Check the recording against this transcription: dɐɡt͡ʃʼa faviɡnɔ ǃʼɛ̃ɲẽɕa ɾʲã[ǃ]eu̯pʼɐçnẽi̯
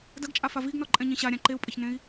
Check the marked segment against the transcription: correct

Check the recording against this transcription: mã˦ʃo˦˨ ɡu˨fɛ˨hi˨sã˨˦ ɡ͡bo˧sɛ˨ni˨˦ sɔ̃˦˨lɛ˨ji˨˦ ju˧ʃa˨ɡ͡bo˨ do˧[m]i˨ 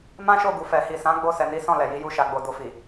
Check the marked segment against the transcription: incorrect: f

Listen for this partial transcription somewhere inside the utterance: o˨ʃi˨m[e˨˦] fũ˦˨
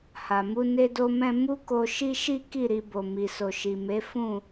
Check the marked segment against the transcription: correct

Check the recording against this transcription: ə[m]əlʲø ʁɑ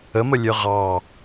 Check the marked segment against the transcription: correct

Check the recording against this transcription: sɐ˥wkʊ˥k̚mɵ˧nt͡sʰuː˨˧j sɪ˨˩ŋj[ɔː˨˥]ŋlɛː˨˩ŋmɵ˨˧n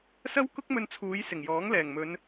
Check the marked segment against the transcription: correct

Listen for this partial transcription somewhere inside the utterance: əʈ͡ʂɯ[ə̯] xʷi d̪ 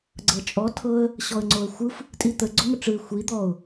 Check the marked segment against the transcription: incorrect: ɪ̯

